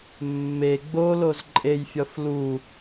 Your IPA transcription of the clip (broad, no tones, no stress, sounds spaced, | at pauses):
mː e ɡ͡b o l o z ǃʼ e j fʲ ɒ f l u